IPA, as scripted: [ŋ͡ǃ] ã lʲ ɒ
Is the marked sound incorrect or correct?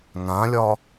incorrect